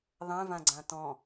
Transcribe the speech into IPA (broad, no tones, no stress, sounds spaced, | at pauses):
ðˤ ɛ̃ v ã ɡ͡ǀ ã t ɔ̃